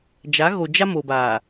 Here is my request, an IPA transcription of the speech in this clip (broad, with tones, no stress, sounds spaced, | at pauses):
d͡ʒ a˨˦ ɣ o˨ d͡ʒ a˦ m o˨ b aː˨